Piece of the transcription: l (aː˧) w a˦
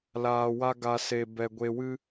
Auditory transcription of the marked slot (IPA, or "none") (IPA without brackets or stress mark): aː˧